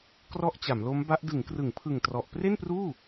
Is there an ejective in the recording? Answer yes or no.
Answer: no